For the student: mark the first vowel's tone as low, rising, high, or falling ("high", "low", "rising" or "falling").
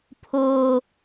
high